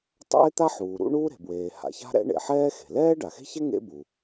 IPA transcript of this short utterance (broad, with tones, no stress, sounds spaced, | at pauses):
tˤ a̰˥ ɪ̯ t̪ a˥ ħ uː˩ ɾ ṵ˥ ɳ uː˥ ɾ e̤˩ b w eː˩ h a̰˩ ç a̤˥ ɾ ɛ̰˥ ɳ ḛ˩ ħ ɛː˥ x e̤˩ l ɛː˥ ɖ a˩ x e̤˥ ç ɛ˥ ŋ ḛ˥ b u˩